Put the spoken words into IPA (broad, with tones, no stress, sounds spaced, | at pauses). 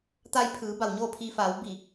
t̪ a˧ j pʰ ɯː˩˧ b a˩ w ɲ oː˥˨ pʰ i˧ f aː˩˧ w b i˧˩